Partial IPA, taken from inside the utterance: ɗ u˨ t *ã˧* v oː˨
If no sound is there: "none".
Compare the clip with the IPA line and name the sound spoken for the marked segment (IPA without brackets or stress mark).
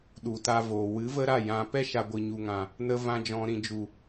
a˧